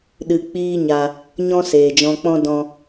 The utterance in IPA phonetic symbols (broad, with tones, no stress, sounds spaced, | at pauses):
ɗ ɨ˧ k͡p iː˦ ɲ a˧ | ɲ ɔ̃˦ s eː˨ d͡ʒ ɔ̃˧ k͡p ɔ̃˦ d ɔ̃˦